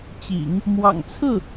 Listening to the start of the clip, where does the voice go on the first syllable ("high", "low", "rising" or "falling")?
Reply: low